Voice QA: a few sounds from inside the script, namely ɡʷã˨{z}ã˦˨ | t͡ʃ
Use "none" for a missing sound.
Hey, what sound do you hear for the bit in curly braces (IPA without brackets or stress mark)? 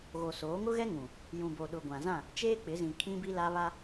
z